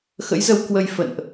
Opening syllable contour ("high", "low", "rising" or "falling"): rising